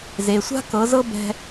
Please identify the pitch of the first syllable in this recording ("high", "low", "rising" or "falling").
low